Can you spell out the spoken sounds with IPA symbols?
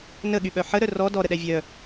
n ə ɠ y ɓ œ ħ ə ɾ œ r ɔ d ɔ ɾ ə ɗ ɛ vʲ œ

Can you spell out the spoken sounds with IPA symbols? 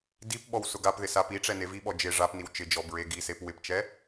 d i p ɓ ɔ w s ʊ ɡ a p ð ɪ s a p i ʈ͡ʂ ɛ n e v i ɓ ɔ d͡ʒ ɪ ʐ a p n i w t͡ʃ ɪ d͡ʒ ɔ b ɹ e ɡ i s e p w ɪ p t͡ʃ ɛ

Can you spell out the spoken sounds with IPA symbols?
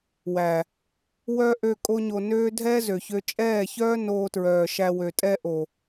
w æ˨ | w œ˦ ʔ ø˧ kʼ o˦ ɲ o˧ n øː˦ dʱ ɛ˦ z ø˨ ç ø˧ t͡ʃʼ ɛː˦˨ ç œː˦ n oː˧ t ɹ œː˨ ʃ æ˧ w ø˨ tʼ ɛ˦ ʔ o˨

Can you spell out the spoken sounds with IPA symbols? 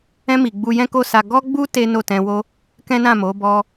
ɛ̃˧ m i˨ ɡ͡b u˧ j ɛ̃˦ k o˦ s a˧ ɡ ɔ˦ ɡ͡b u˦ t e˦ n o˦˨ t ɛ̃˧ w o˦ | k ɛ̃˦ n ã˦˨ m o˨˦ b ɔ˦

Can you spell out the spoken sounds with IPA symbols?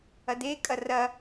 ɐ d e kʼ ɐ r ɐ

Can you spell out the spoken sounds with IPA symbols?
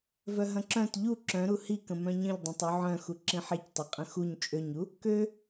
v œ ɦ ɐ̃ ǁ œ̃ t ʎ u ǁ œ̃ ɾ u h i k ə̃ m œ̃ ɲ ə̃ ʎ dˤ œ̃ tˤ u ʕ œ̃ x u ǁ ĩ ħ i c tˤ ɐ qʼ ə̃ x u ɲ t͡ʃʼ ø ɲ u | k ø

